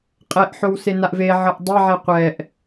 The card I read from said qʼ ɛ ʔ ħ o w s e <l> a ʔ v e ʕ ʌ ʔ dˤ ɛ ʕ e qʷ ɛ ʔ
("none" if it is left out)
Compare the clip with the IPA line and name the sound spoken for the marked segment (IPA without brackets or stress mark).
n